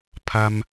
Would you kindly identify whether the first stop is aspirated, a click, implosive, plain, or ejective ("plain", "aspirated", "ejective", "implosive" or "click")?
aspirated